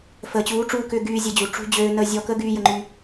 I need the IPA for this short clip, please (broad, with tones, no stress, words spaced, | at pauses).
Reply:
fəː˨t͡ɕuː˨˦ʈ͡ʂuː˧kʏː˧ ɡyː˧ zʲə˧d͡ʑu˨ ʈ͡ʂṳ˦ d͡ʑøː˧nəː˧zʲɔ˧ kə˦ɡyː˧ jə˧ŋ͡ǃy˧